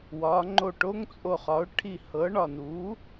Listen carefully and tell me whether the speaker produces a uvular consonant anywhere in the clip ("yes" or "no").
yes